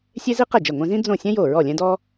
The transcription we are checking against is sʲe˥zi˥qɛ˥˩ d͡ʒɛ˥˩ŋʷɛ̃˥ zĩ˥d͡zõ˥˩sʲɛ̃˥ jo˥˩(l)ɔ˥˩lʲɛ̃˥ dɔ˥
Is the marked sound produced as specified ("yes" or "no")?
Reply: no